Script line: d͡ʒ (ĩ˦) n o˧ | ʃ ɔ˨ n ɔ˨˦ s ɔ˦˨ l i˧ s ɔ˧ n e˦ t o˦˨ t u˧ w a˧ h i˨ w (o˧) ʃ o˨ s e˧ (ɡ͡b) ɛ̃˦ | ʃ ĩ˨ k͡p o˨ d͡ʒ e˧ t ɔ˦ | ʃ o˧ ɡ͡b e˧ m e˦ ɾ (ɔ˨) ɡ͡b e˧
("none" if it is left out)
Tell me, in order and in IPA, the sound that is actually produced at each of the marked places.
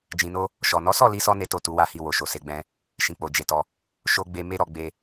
ĩ˨, o˨, ɡ͡b, ɔ˧

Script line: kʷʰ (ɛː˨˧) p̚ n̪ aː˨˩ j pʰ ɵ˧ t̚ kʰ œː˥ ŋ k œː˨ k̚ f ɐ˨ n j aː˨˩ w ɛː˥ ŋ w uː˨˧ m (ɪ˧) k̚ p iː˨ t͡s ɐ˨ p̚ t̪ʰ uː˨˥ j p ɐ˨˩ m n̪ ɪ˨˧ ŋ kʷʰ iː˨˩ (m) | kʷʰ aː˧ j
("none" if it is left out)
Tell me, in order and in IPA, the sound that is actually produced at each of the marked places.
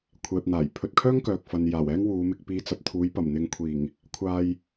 ɛː˨, ɪ˧, ŋ

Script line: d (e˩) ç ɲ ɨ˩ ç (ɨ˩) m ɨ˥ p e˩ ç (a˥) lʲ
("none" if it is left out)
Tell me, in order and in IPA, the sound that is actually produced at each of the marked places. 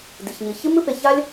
i˩, ɨ˥, a˥

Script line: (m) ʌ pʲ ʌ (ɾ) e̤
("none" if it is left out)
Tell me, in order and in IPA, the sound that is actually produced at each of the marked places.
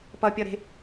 p, ɾ

